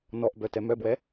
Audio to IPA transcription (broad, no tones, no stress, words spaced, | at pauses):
nɔʔbœtɛ mœbwɛ